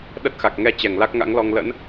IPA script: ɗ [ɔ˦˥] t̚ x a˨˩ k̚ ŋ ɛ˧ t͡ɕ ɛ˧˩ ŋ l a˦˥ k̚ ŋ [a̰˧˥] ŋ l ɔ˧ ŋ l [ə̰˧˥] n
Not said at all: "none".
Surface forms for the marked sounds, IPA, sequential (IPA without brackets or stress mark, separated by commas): ə˦˥, a̰˧˥, ə̰˧˥